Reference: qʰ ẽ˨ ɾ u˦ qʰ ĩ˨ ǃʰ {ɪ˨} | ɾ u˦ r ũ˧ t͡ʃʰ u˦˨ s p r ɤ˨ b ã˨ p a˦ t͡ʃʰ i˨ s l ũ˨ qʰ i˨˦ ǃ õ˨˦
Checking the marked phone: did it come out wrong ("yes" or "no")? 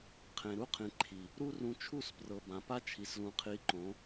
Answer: yes